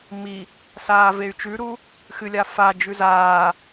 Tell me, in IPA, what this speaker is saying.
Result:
m i | s aː v e y̯ t͡ʃ ʉ ɾ u | x ɨ lʲ a f a d͡ʒ ʉ z aː

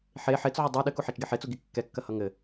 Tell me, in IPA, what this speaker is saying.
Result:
ħ e ħ e t͡s ʕ o dˤ ɛ ɗ ɘ k u ħ æ t͡ʃ ɡ e ħ e t͡s u ɡ i kː ɛ kː ɐ h ʌ ŋ ɘ

